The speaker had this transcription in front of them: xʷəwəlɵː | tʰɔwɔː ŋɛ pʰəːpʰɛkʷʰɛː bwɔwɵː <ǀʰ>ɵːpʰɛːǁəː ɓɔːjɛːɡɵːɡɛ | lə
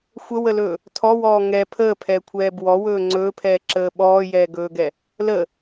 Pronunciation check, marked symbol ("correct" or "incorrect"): incorrect